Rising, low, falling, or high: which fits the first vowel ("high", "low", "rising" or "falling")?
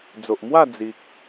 low